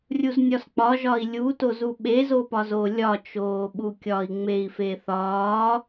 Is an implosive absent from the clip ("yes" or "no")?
no